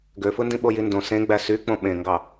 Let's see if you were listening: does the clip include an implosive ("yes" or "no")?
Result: yes